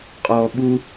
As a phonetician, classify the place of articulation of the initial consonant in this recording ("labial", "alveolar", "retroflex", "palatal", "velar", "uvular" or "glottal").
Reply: uvular